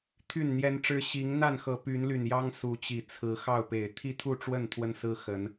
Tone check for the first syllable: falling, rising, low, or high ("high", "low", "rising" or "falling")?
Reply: falling